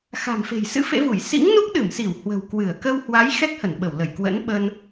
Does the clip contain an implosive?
yes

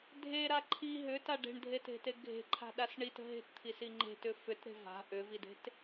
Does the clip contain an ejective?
no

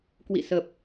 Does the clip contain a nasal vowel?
no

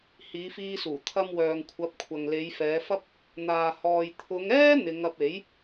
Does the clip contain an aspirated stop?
yes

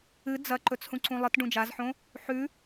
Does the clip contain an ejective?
no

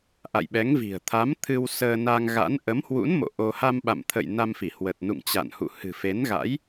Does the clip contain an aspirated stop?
yes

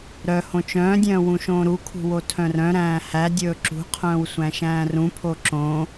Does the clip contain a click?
yes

